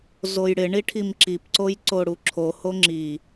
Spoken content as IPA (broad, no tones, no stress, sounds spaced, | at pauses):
z o j ɽ ɪ ɳ i ʈʰ i m ǁ i p ǀ o j ǀ o ɽ u ǁʰ o h o ŋ͡ǁ i